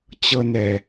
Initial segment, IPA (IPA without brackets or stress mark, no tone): t͡ɕ